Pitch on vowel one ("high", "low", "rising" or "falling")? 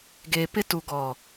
low